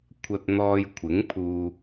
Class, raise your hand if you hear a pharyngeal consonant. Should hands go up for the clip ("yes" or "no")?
no